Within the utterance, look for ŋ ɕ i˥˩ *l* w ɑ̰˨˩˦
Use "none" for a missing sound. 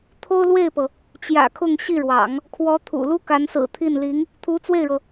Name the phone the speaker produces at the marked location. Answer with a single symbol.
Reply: ɻ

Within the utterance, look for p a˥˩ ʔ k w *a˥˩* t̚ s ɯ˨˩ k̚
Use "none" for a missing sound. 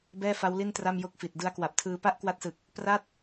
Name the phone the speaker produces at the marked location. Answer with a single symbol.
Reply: a˦˥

